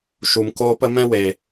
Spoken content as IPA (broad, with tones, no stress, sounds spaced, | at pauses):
ʃ u˨ m k oː˦ p ə˦ m ɛ̃˦ w e˨